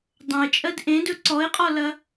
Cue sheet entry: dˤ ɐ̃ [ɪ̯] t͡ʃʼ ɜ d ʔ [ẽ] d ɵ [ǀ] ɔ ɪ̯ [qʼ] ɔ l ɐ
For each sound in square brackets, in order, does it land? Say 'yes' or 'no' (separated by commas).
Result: yes, yes, yes, yes